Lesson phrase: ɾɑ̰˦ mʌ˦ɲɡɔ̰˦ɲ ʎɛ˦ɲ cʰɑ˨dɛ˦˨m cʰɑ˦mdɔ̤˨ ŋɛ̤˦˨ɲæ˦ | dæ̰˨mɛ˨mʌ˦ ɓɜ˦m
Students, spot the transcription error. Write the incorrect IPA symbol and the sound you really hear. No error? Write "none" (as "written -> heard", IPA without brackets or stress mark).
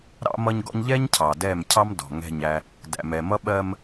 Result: none